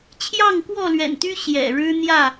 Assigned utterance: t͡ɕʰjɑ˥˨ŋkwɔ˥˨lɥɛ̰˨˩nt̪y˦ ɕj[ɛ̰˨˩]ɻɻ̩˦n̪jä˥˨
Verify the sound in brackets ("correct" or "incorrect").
correct